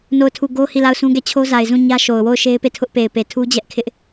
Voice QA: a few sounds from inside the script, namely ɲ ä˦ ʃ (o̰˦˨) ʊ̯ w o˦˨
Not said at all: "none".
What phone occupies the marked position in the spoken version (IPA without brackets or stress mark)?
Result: o˨